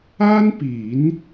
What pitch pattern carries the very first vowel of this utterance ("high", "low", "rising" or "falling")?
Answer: high